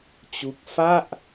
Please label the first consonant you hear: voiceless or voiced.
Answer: voiceless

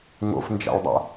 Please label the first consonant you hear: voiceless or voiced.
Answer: voiced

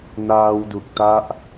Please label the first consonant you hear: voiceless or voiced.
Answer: voiced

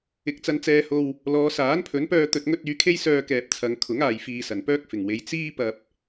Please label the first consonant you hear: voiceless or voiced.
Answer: voiceless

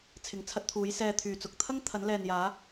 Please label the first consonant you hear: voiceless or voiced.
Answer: voiceless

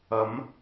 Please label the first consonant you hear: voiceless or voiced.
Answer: voiced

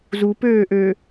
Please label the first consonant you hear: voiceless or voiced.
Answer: voiced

